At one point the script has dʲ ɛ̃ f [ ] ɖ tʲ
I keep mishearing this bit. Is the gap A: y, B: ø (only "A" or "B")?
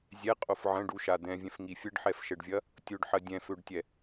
B